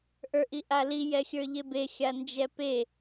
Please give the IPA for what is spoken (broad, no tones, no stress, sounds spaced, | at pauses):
ʔ ə˞ ʔ i ʔ a l i j ɛ xʲ ə˞ ʎ e b e xʲ a n d͡ʒ ɛ p e